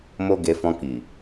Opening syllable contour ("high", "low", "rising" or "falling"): high